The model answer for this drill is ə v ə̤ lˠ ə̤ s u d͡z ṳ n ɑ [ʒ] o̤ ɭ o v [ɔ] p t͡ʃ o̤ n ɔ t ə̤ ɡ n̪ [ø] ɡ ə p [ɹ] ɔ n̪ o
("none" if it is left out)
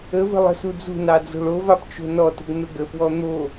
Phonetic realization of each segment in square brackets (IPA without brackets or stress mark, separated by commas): d͡z, ɑ, ə, w